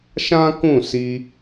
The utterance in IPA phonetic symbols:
ʃ ã˦ k ũ˦˨ s i˧

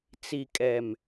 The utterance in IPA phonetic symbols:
t͡s i˨ kʼ ɛ˨ m

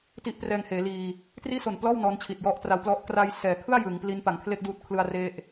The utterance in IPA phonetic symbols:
t i˦˥ ʔ p r ɛː˧ ŋ h eː˩˦ l iː˧ | t r iː˥˩ s o˨˩ n p l ɔː˥˩ w n ɔː˦˥ n t͡ɕʰ i˨˩ t̚ j ɔ˥˩ ʔ t r a˦˥ w p l ɔ˥˩ ʔ k r a˧ j s ɛː˩˦ kʰ ɯ˥˩ a̯ j ɯ˩˦ ŋ p l i˦˥ n p a˩˦ ŋ kʰ l e˥˩ k̚ d uː˦˥ t̚ kʰ l ɯ˧ a̯ r e˦˥ ʔ

